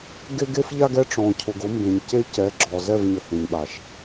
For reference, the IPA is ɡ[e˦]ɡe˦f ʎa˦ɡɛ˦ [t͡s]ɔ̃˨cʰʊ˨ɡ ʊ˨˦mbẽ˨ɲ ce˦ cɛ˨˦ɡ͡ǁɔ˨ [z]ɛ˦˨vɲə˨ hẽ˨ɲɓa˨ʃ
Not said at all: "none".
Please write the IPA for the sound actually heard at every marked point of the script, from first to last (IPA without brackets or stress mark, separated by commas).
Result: e˦, ʈ͡ʂ, z